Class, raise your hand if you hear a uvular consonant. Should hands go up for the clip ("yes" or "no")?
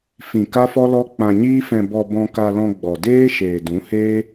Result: no